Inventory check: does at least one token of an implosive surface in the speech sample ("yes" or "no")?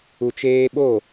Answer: yes